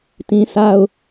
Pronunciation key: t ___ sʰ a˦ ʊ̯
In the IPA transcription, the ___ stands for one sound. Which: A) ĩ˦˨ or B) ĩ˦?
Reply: B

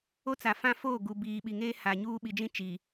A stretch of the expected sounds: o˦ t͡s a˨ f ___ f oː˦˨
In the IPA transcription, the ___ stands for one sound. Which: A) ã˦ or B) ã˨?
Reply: A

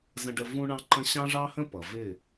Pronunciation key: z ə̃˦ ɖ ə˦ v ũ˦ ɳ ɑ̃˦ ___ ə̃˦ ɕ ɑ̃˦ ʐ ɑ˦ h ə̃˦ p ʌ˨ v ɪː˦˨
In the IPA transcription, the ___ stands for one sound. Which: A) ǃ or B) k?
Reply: A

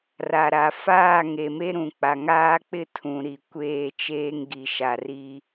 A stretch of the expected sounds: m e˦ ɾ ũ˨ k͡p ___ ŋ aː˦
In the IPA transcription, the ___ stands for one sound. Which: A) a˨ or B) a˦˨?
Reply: A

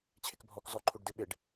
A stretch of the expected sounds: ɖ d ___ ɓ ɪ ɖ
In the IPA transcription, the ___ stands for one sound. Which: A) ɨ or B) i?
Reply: A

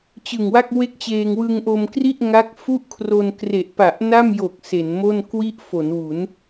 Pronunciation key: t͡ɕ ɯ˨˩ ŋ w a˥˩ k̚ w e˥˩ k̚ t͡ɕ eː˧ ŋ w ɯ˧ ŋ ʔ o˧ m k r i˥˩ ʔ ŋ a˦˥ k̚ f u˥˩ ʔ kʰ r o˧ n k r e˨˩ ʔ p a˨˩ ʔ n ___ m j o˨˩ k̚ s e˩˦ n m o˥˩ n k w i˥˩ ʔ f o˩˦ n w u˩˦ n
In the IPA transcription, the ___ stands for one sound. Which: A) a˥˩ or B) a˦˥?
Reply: A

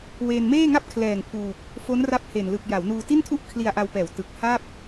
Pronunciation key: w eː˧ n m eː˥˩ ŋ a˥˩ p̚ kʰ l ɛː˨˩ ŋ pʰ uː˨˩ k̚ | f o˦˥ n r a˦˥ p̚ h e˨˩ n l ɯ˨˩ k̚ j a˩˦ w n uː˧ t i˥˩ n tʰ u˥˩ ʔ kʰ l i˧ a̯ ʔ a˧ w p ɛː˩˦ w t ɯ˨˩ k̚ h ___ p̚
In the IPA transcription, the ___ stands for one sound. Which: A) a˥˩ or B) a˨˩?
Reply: A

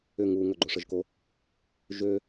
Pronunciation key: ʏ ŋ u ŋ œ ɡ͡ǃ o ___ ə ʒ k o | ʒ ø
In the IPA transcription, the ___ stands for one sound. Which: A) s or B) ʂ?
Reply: B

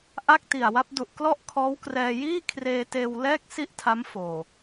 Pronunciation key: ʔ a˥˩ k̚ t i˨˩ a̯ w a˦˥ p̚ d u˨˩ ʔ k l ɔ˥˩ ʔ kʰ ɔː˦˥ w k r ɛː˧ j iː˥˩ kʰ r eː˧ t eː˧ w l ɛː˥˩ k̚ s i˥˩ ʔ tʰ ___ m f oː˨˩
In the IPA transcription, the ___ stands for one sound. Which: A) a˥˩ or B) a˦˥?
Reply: B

